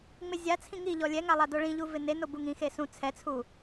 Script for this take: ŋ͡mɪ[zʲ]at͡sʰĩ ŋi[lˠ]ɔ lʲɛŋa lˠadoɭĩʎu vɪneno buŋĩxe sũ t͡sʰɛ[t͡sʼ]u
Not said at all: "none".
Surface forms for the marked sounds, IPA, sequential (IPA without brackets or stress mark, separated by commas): zʲ, ʎ, t͡sʰ